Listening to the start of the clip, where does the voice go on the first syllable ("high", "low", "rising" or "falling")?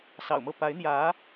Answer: low